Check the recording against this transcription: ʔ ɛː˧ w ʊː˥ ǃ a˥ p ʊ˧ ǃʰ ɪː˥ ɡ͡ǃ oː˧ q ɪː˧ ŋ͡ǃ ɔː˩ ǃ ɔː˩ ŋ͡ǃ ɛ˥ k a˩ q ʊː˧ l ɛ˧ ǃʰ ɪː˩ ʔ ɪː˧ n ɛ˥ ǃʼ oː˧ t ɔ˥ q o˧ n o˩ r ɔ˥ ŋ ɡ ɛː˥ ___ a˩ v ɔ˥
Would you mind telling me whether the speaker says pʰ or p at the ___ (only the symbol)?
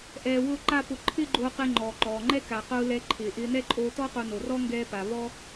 p